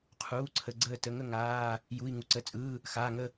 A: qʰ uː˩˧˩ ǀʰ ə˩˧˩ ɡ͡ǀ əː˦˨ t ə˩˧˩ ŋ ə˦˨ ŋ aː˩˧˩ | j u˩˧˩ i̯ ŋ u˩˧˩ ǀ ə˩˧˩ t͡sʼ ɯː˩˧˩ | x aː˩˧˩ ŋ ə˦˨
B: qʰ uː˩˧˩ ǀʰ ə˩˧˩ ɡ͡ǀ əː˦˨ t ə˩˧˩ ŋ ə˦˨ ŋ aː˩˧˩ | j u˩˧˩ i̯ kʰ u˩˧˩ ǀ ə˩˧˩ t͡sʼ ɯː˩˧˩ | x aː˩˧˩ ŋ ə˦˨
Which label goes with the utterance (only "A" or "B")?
A